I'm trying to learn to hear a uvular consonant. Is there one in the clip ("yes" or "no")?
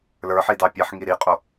yes